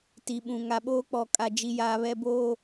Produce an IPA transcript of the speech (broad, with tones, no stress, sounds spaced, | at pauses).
t i˨ ɓ ũ˨ ŋ a˨ ɓ oː˦ k͡p ɔ˨ kʼ a˨ d͡ʒ i˨ j aː˨ β ɛ˨ b oː˨